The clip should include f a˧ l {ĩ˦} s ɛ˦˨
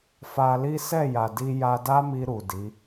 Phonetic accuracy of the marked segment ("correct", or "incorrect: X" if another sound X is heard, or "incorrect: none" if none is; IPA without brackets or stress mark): incorrect: i˦